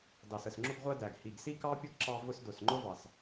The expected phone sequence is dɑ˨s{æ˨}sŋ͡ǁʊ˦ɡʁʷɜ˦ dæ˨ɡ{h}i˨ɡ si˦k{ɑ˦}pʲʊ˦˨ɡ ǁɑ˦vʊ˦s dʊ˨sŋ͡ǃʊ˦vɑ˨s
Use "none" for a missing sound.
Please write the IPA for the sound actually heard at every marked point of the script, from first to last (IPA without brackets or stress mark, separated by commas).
ə˨, h, ɑ˦